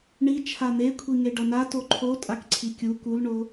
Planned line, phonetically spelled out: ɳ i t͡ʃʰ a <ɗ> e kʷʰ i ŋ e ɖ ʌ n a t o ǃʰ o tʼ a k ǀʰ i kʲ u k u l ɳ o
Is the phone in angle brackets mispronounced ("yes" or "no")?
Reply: yes